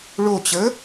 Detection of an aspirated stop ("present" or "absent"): absent